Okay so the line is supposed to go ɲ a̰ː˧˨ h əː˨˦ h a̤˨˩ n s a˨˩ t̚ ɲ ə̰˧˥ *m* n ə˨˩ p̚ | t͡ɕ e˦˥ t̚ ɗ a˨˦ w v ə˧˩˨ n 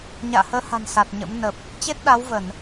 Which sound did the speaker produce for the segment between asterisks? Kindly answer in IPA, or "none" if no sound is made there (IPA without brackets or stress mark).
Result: m